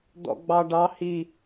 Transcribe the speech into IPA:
d̪ɔ̰ɡ͡bɑɖɑ hi

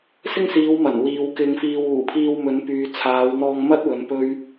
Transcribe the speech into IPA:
sɪ˥ŋsiː˨˧w mɐ˨˩n wiː˨wkɪ˧ŋfiː˧w uː˨˩pʰiː˧wmɵ˨˧npyː˨ t͡sʰaː˨˧wn̪ɔː˧ŋmɐ˥t̚wɵ˨˧n pɵ˥ɥ

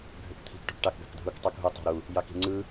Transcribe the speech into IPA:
ɡʱøkt̪ʰi̤k ʈṳkʈɑkɡɑ̤kdʱuk tˤukɦu tˤɑ̤ɾu | jɑki̤ŋ͡ǀɯ

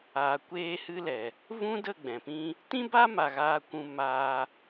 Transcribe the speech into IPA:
aː˨kʷeː˧hɨ˧lɛ˨ | vũ˦də˦˨ ɡ͡bɛ̃˨pĩ˦ | tĩ˦ba˦ma˨ ɣaː˧kʷũ˧ maː˧

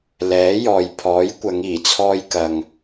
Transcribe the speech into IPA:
lɛː˨˥jɔː˨jpʰɔː˨˥jkʷɐ˨˧ŋ iː˨˩t͡sʰɔː˧jkɐ˨ŋ

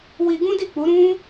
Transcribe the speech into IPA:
wi˧ɡũ˦di˦˨k͡pu˨˦ ɾũ˦

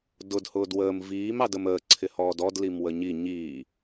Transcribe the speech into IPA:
dʊd hʊːdwəːm viːm ɑdəməː ǀʰɪhɔːdɔd limwəɲi ɲiː

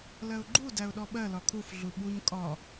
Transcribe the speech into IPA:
lɜʊ̯ɡ͡ǃu dæʊ̯ɗɔɓɜlɒ kʰuf ɮuɓuɲ kʼɒ

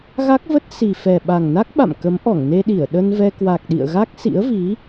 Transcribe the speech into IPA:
ɣa˦˥k̚və˦˥t̚ si˨˩fɛ˨˩ ɓa˨˩ŋna˦˥k̚ɓa̰˧˨m kə˨˦mʔɔ˧˩ŋne˧ɗi˧˩ə̯ ɗə˧nvɛ˧ kwa˨˩k̚ɗḭ˧˨ə̯ ɣa˦˥k̚sḭ˧˥ə̯vi˨˦

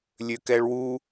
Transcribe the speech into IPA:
lʲøkɛɭwu

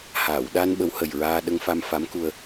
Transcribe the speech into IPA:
haː˨˩˨wɗa˧n ɓə˧˥whə˨˩jɹaː˧ ɗə˧ŋfa˧m fa˧˥mku˧ə̯

